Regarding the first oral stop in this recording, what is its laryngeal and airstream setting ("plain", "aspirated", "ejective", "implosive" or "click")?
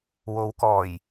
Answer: plain